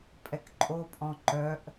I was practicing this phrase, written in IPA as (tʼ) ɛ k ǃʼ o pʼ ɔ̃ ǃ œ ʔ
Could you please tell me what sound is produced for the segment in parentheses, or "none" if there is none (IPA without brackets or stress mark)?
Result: pʼ